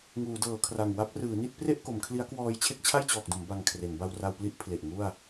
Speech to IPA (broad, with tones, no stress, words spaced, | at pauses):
ŋuː˩˦dɤː˩˦kʰra˨˩ŋ wa˦˥p̚rɯː˩˦ni˥˩t̚ pre˥˩ʔko˩˦mkʰli˦˥a̯kwɔː˧j t͡ɕʰe˥˩k̚t͡ɕʰa˥˩jt͡ɕɔː˨˩k̚do˩˦m ba˧ŋkʰre˩˦n ba˧wra˧wpli˦˥ʔ pʰle˨˩ʔŋu˥˩a̯